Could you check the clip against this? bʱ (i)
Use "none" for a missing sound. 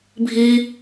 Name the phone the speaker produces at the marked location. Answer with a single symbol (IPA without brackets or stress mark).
i